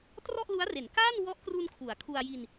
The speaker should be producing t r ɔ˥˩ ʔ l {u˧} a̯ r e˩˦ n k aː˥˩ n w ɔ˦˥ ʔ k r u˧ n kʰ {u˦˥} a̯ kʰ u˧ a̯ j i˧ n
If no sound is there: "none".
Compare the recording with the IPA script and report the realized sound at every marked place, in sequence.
u˦˥, u˩˦

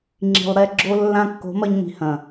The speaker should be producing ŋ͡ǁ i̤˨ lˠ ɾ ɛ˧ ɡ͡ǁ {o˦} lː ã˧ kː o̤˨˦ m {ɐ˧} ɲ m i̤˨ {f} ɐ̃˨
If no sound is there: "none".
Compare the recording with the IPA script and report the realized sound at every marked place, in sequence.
o˧, ɐ˧, h

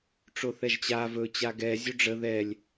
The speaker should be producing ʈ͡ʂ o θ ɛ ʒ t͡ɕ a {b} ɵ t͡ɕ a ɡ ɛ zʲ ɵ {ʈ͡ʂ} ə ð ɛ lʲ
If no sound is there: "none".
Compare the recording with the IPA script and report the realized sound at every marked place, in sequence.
v, ɖ͡ʐ

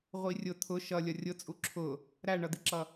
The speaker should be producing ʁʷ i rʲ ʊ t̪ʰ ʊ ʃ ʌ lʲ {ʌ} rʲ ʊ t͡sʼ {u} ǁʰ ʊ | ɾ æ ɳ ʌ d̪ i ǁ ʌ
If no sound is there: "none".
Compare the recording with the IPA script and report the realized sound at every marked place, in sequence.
ʌ, u

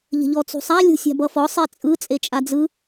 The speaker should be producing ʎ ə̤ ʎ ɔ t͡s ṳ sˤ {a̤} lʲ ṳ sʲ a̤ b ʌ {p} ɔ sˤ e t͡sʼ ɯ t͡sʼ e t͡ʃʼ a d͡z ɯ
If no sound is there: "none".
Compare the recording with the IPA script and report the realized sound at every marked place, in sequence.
a, f

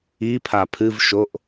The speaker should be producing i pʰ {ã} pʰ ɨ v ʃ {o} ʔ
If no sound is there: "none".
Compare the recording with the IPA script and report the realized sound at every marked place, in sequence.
a, o

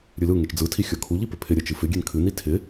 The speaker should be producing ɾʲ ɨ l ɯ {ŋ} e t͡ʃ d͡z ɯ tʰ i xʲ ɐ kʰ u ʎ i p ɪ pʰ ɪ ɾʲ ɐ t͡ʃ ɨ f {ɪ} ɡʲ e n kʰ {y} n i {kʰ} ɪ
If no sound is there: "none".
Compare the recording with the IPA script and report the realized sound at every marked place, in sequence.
ŋ, ɪ, ɨ, tʰ

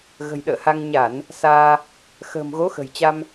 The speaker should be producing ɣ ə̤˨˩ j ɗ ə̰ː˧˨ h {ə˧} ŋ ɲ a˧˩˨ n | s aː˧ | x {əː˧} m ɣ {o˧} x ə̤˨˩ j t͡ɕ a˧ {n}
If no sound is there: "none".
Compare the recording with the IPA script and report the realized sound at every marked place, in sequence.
a˧, ə̤ː˨˩, o˨˦, m

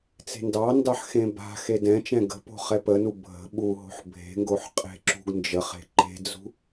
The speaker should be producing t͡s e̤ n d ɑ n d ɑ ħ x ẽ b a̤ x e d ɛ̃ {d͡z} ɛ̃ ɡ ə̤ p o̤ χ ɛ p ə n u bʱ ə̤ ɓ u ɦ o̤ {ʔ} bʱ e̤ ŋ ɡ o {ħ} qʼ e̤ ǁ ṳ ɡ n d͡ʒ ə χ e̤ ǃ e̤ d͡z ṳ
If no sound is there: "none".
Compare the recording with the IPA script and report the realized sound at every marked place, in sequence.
t͡ʃ, ħ, ħ

